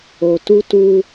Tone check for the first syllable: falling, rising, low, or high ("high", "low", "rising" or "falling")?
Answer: low